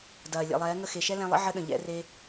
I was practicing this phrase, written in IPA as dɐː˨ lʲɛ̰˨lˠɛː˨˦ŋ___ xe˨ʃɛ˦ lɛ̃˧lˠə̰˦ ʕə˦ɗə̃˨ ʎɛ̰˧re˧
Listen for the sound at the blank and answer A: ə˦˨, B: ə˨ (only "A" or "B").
A